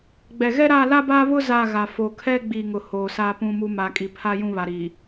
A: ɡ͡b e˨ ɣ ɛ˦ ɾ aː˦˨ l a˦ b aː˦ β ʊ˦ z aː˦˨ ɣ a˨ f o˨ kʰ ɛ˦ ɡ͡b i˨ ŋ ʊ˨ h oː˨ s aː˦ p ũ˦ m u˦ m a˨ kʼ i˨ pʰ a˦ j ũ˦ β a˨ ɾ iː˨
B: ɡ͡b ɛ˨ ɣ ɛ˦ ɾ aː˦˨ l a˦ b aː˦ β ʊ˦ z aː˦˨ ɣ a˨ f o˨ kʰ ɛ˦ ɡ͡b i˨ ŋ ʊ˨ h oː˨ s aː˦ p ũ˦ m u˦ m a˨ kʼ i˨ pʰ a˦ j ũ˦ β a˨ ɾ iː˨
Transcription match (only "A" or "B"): B